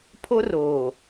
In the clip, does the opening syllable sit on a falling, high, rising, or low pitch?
high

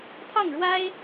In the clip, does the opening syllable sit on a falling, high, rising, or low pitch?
falling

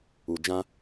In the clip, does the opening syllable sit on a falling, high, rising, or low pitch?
low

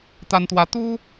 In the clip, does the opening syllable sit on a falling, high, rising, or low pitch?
high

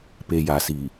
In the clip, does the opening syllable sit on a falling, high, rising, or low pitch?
low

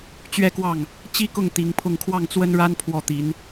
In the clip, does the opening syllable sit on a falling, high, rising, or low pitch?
falling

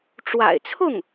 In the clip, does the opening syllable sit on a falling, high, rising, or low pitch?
low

